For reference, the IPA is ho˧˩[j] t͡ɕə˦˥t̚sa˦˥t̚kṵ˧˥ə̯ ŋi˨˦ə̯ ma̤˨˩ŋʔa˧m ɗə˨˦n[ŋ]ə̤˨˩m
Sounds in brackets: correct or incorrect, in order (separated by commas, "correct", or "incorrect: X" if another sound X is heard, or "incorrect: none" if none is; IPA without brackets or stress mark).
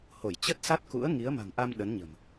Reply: correct, incorrect: ɲ